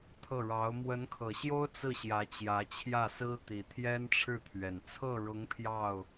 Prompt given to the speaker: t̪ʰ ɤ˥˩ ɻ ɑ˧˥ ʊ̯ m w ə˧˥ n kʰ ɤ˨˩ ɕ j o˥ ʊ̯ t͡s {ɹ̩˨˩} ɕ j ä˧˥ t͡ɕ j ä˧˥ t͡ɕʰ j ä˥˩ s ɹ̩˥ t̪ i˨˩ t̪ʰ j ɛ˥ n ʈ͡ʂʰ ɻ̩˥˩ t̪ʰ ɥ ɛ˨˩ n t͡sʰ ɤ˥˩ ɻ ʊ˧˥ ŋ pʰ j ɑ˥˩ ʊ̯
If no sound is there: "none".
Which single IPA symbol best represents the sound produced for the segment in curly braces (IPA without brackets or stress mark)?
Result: ɹ̩˥˩